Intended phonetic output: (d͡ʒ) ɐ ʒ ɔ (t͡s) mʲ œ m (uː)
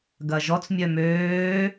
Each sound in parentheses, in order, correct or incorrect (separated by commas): incorrect, correct, incorrect